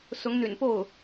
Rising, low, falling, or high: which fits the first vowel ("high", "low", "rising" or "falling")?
rising